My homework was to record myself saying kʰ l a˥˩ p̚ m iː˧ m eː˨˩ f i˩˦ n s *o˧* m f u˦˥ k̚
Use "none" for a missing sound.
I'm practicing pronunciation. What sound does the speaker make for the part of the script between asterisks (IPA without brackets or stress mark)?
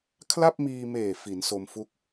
o˧